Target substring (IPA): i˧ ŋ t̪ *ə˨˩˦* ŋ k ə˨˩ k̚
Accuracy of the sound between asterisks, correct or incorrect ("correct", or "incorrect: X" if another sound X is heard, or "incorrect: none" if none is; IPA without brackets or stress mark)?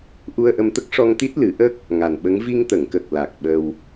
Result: incorrect: ə˨˩˨